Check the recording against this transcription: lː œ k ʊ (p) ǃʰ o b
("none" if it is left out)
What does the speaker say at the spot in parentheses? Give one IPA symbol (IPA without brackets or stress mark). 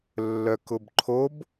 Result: b